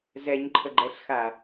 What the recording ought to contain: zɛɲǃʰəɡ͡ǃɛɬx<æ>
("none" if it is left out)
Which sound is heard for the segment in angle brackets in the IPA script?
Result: a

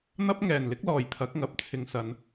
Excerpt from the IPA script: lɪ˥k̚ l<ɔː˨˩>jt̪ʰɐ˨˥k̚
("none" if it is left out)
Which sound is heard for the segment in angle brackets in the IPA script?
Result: ɔː˨˩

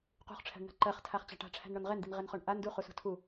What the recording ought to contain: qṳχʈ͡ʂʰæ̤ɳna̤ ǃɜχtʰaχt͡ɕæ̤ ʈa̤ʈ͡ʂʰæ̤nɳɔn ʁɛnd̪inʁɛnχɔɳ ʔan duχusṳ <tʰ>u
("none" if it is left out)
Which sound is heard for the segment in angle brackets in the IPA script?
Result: tʰ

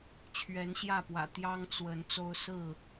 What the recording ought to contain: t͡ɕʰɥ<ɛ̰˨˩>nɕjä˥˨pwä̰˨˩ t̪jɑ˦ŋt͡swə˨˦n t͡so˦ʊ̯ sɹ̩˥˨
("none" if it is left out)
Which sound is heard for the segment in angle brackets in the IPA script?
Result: ɛ˨˦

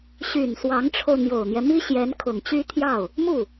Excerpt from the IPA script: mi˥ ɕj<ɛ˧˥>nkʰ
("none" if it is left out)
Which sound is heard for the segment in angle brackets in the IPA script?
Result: ɛ˧˥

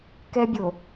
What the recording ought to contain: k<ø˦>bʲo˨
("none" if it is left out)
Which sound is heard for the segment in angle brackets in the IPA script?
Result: ɛ˦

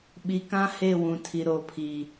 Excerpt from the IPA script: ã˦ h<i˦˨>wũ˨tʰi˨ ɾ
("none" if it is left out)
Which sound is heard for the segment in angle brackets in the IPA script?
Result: e˦˨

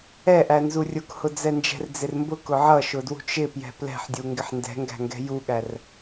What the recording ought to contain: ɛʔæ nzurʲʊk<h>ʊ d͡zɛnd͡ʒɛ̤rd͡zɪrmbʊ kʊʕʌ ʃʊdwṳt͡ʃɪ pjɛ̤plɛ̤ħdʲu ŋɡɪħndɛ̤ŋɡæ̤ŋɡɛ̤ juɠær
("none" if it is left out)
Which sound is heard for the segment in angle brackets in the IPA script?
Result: h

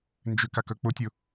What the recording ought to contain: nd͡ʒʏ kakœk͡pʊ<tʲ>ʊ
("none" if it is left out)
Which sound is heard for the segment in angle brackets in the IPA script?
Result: tʲ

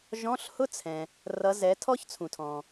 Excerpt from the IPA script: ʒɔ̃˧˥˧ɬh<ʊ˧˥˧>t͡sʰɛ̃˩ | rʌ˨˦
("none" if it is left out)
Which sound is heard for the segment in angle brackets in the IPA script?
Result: ʊ˥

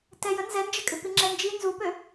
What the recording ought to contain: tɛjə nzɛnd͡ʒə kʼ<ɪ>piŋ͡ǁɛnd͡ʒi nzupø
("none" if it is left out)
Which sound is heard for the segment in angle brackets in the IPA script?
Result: ɪ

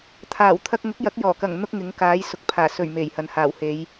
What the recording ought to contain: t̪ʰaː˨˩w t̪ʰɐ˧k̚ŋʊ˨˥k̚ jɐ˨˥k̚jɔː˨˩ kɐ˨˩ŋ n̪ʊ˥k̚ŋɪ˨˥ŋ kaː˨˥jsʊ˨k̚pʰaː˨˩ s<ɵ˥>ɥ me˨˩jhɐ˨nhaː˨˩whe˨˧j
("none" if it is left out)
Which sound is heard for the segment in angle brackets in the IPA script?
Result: ɵ˨˩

